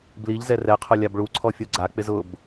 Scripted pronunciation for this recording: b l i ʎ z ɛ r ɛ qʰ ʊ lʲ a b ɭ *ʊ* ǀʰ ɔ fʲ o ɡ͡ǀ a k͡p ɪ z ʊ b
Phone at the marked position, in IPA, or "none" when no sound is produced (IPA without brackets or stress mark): u